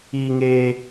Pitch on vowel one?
high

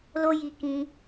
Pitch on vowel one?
high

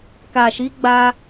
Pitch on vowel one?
low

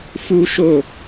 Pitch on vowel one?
high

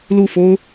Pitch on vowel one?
falling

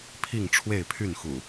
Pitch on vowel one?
falling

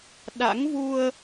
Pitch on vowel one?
rising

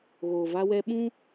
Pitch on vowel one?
low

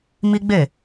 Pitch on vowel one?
high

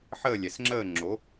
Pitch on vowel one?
falling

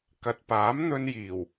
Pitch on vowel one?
low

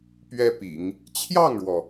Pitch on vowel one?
high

